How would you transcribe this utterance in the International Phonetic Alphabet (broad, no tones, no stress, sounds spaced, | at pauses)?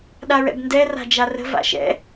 ɗ a ɹ ɛ̰ b n d ɛ r a̤ d͡ʒ a r ə̤ v a̰ ʃ ɛ̰